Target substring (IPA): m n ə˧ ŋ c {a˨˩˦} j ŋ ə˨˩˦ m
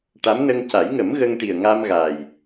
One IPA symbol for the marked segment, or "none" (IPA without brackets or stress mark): a˨˩˦